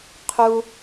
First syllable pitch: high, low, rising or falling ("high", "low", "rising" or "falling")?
high